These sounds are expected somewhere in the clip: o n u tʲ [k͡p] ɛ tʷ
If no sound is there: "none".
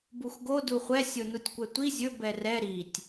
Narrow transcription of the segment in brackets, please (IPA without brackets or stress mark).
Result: kʷ